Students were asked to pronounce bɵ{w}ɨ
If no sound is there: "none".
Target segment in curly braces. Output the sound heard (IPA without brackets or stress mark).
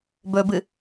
b